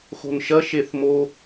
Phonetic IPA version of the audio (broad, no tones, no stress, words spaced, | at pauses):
xo̤nʃɐ ʃeθmo